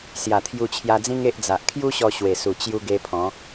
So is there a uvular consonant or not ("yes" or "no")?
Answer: no